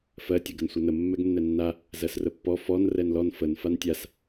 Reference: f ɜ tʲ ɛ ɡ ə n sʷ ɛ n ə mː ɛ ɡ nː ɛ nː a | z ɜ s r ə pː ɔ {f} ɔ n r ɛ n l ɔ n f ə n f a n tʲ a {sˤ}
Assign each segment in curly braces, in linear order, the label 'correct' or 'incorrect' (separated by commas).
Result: correct, incorrect